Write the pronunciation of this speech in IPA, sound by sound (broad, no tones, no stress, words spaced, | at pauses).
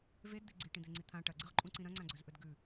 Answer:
vedd̪i ɡ͡ǀiʈĩd̪eŋ͡ǀi t̪ʰã ʈɐɡ͡ǀɨʁǃʼũǀĩ ɾɐ̃ŋ͡ǀãɡ͡ǀɵzʔɵd ɡʉ